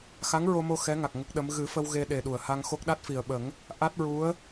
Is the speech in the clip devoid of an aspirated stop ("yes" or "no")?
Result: yes